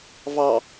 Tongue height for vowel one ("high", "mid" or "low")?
low